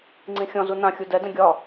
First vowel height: high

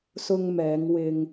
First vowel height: high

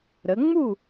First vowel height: mid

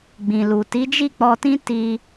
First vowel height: high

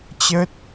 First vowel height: mid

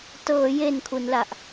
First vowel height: mid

